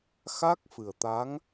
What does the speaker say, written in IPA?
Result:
xa˦˥k̚fɨ˨˩ə̯t̪a˧˥ŋ

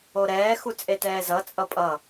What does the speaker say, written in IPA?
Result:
oɾɛː xut͡sʼetɛːzʌ t͡sʼʌpʼʌ

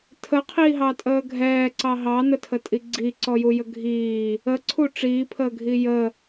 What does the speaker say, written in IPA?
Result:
tʰəqʰiːɦɑtʼəː ɡʱɛːǀɑ ɦɑnətʰətʼi ɡ͡ǀiǀɔjujə ɡʱiː | əǀʰu ʈ͡ʂiːpʰəːɡʱi jə

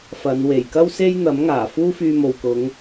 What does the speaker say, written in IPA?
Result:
fɐ˨˧n we˨˩jkɐ˥wse˥j n̪ɐ˨˥m ŋaː˨˩ fuː˥fyː˧mo˨wkʊ˨˧ŋ

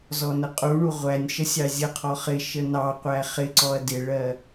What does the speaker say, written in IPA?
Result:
zɔnəqʼuɳu ʁʷænʲʃə sʲɑzʲəqʰɔ χɪ ʃənɑqʷæ χɪǀɔɐ̯ dɪɭɜ

